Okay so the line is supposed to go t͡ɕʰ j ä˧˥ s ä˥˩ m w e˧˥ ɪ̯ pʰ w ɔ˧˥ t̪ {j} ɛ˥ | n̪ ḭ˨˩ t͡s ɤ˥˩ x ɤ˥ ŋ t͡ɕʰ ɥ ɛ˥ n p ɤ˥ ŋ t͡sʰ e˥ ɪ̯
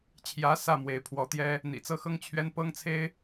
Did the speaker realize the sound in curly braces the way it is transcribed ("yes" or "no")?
yes